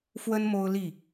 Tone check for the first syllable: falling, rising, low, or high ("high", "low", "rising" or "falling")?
high